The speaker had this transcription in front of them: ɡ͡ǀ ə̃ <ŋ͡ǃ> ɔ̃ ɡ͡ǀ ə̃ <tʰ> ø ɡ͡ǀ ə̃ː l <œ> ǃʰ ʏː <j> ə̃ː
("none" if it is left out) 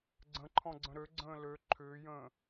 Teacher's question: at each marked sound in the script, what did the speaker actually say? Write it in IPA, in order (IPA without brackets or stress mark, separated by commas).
ǃʰ, ɾ, ø, j